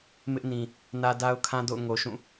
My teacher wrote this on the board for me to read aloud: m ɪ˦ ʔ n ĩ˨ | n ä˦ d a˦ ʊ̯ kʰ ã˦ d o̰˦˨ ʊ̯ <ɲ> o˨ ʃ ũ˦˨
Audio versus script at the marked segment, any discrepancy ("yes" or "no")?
yes